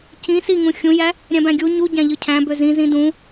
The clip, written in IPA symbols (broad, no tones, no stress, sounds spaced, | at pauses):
c ĩ s i ŋ ũ xʲ ũ j æ | ɾʲ æ̃ b æ̃ ɡʲ u ɲ u ɟ æ̃ ʎ ɯ cʰ æ̃ b ø z ĩ z ĩ d ũ